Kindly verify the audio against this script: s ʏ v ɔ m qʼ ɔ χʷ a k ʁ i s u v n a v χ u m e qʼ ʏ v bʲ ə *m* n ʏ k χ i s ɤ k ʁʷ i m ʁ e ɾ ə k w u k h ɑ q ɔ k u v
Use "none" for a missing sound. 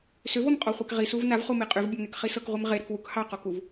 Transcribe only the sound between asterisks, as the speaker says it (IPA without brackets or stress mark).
m